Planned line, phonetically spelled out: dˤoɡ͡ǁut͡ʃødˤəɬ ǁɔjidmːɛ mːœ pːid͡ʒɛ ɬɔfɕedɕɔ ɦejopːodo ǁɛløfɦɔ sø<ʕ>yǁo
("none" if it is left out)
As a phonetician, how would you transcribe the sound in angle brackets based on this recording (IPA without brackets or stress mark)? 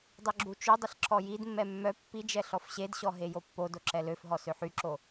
ħ